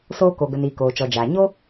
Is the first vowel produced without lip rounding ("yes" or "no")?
no